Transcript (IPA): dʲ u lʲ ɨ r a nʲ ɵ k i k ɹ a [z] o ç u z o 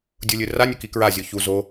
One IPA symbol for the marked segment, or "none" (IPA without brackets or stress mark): zʲ